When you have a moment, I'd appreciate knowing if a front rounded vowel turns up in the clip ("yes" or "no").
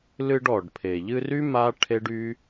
yes